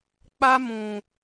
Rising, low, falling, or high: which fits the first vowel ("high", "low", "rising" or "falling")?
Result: high